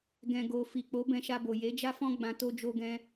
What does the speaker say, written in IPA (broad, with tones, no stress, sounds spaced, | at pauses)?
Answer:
ɡ ɛ̃˨ ɡ o˨ f i˨ k͡p o˨˦ b ɛ̃˧ ʃ a˧ b o˨ j e˨˦ d͡ʒ a˦ f ɔ̃˦ ɡ͡b ã˧ t o˦ d͡ʒ o˦ ɡ ɛ̃˦